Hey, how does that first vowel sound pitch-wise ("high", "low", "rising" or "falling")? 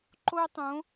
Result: high